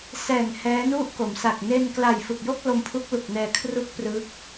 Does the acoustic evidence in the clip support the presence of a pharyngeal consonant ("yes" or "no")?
no